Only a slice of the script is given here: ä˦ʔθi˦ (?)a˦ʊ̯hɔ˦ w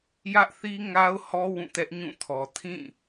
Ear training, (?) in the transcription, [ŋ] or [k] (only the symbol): ŋ